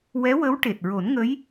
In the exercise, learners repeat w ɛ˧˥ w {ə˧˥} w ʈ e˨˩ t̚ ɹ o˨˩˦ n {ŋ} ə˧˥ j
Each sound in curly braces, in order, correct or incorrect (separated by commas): correct, correct